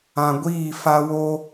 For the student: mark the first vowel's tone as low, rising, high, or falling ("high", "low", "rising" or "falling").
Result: low